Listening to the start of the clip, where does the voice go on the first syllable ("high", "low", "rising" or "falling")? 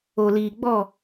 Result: low